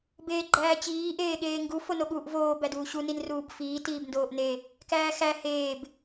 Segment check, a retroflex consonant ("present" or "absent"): absent